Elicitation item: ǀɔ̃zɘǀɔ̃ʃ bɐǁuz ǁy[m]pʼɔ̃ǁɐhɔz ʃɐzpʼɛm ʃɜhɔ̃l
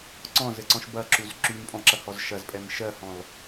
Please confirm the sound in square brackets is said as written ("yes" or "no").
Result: yes